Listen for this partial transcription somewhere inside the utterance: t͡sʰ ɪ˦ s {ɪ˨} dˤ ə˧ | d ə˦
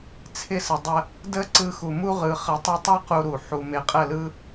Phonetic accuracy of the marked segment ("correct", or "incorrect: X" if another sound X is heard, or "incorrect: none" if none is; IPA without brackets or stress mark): incorrect: ə˨